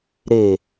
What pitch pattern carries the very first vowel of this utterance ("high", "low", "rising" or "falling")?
low